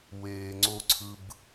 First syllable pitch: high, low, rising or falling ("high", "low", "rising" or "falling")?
low